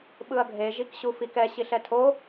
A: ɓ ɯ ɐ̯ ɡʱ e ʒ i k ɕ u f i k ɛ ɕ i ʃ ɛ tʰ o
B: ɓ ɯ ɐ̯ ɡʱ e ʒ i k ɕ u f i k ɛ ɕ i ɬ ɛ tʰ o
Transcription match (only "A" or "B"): B